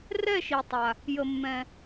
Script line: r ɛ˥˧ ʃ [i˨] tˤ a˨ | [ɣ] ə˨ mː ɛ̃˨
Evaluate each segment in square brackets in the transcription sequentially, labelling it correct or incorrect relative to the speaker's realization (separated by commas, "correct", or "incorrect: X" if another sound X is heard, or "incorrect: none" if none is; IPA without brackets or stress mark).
correct, incorrect: j